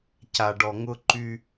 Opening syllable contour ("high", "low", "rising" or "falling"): low